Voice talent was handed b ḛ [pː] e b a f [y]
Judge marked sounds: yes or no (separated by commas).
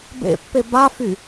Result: yes, yes